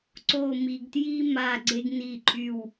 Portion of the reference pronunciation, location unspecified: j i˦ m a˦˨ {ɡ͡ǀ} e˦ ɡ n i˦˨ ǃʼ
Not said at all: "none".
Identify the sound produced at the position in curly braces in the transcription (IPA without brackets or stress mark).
ɡ͡ǀ